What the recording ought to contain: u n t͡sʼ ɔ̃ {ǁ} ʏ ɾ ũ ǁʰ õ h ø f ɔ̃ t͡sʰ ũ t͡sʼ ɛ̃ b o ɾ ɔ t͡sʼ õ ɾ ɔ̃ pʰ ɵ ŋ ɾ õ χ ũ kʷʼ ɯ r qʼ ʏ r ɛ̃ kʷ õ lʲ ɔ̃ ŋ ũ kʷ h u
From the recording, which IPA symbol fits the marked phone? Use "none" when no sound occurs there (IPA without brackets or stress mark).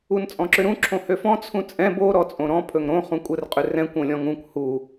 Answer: ǁ